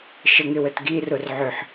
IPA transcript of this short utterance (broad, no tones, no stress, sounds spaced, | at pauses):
ʃ ə ŋ ɪ w ə t ɡ i r ʊ r ʕ ʏ ħ